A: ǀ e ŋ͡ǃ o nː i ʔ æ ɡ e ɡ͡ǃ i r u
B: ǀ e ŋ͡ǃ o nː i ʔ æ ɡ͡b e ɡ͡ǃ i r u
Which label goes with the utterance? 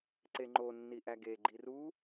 A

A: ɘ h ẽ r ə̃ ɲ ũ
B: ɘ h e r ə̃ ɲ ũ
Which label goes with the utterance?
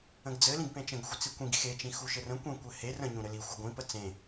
B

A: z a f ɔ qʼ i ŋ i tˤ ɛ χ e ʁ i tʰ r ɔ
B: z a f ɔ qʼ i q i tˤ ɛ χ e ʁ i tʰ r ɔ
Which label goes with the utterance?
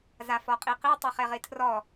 B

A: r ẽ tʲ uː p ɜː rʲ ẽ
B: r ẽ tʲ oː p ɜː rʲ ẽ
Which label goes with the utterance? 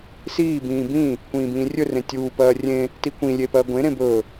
A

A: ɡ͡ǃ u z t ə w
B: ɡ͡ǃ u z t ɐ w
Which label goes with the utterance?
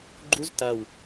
B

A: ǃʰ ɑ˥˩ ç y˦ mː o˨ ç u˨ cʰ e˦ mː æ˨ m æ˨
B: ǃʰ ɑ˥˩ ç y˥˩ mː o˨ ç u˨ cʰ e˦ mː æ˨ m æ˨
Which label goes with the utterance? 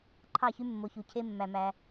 A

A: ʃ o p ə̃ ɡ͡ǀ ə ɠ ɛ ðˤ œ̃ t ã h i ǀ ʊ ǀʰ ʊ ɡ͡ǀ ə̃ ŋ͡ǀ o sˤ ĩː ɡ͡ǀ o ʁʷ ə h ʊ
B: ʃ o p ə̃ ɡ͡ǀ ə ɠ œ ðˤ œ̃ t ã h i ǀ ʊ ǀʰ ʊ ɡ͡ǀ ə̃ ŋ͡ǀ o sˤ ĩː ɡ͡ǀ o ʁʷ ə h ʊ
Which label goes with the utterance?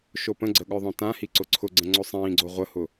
B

